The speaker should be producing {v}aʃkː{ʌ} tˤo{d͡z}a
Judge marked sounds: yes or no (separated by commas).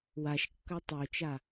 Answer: no, yes, no